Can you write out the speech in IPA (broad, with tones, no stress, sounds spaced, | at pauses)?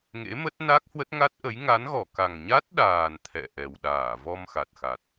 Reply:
ŋ ḛ˧˥ m ə˦˥ t̚ n a˦˥ k̚ h w ə˦˥ t̚ ŋ a˦˥ t̚ ʔ ə˨˦ j ŋ a˨˦ n ɣ ɔ˧˩ k a˨˩ ŋ ɲ a˦˥ t̚ ɗ aː˨˩ n t̪ʰ ɛ̰˧˨ ʔ ɛ˨˩ w ɗ aː˧˩ v ɔ˧ m x a˨˩ t̚ x a˨˩ t̚